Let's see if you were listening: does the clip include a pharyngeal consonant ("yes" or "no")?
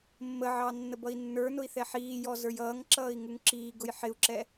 yes